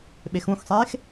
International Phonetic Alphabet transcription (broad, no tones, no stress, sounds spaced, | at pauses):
ɓ e x ũ x sˤ eː x